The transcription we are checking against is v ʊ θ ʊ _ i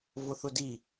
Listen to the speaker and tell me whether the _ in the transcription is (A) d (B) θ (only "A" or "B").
A